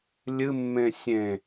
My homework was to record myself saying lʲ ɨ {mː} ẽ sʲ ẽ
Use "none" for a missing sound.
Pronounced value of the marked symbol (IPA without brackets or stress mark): mː